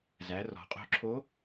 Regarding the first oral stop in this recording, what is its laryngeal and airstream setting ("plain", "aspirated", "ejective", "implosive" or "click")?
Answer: ejective